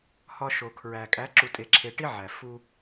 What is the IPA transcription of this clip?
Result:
hɒ˧ ʃo˨kʰɹæ˨ kʼæ˨˦ǁu˨tʼe˨ǁʰe˨ ʈi˦ ʕæ˨ fu˧

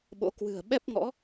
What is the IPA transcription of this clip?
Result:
ɓo̰˧˥ kwɨ̤˨˩ə̯ɓɛ˦˥p̚ŋɔ̰˧˥

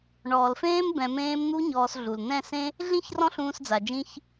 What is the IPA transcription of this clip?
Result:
ɳɔː˨lfẽː˦m bɛ̃˧mẽː˦m n̪u˦ ɲɔː˧s ɮu˨lnɛ̃˦˨sẽ˦ | ɮĩ˦ç rɔ̃˦ɬũː˧sd͡za˨d͡ʒĩ˧ç

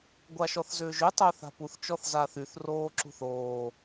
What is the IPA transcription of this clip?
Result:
ɡʷaʃɔθzʏːʒʏ tˤœːθa̤puθ t͡ʃɔθzaːθyθ roːǁṳθoː

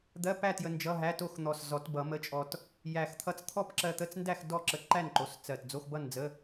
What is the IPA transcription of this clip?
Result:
d̪ɜ˧˥˧pæ˥˨ tjə˧nd͡ʒʌ˧˥˧ɦæ˧˥˧to˥˨x n̪ɔ˧˩s zɔ˨˩˦tbʌ˨˩˦ mə˧˥˧t͡ʃʼɔ˧t | jæ˧˩x t̪ʰʌ˧t͡s t̪ʰɔ˥˨pǁɜ˧t̪ə˧˥˧t͡sndæ˥˨x dɔ˥˨ǁə˧˩ ǃæ˥˨nǃo˩˧˩s t͡sɜ˧˩t d͡zo˧˥˧xbʌ˥˨nd͡zə˧˥˧

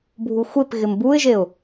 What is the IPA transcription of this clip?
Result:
bʱuxʷep ɣɪmbuɪ̯ʒeʊ̯

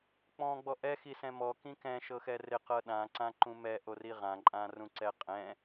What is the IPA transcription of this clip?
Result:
k͡pɔ̃ ɡ͡bɔʔɛ xisɛ̃mɔ kĩkɛ̃ ʃɤxɛrɪ qɤɗã ǀãǃũmɛ ʔoriʁã ǃʼãrũǀɛqʼɛ̃

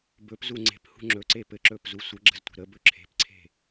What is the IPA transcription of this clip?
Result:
bɵpzu ŋ͡ǀe̤phṳ ŋ͡ǁɵǀe pɘǁɵːpzu sʷəɡ͡ǁə̤ztʷe̤ ɾəbɵ ǁʰe̤pǀʰe̤

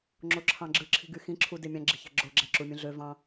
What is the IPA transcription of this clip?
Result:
ŋ͡ǁoǁʰɑ̃ɡ͡ǁɯ ǁʰi̤ɡyxĩǁʰu demʲɑ̃ɡ͡ǁi̤çæ̤ ɡ͡ǁoɡ͡ǁæǁumʲũ ɮø vɑ̃

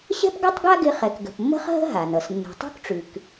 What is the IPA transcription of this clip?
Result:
ɕɛ̤˥pɡʌ˥tˤɡa˥ɡɪ˧ χɛ˩kɡə̤˩pmːə̤˥χ ɦə̤˥ ɦa˩nʌ˩s nːṳ˩tˤṳ˥kʈ͡ʂʉ˩k

